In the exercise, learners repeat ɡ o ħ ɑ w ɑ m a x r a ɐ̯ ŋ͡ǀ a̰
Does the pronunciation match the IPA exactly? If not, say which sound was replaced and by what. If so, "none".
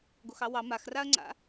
ħ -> x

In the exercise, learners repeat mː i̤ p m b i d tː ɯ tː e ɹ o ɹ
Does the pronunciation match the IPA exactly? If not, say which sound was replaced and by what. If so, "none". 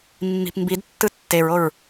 none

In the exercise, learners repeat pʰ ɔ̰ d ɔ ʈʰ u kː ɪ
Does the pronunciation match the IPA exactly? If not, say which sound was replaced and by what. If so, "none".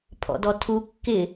ʈʰ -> tʰ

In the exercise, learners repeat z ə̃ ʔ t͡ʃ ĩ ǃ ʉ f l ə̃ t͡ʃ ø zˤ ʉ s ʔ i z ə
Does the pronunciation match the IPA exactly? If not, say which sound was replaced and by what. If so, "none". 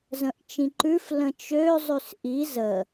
none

